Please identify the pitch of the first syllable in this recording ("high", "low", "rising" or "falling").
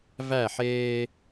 falling